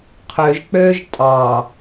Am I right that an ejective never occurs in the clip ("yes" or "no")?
no